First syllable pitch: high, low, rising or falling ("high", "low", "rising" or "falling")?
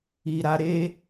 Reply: low